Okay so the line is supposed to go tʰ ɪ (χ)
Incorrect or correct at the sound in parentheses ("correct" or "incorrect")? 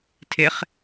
correct